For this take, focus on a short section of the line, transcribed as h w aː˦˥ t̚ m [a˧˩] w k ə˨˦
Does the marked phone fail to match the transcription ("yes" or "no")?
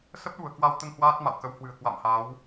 yes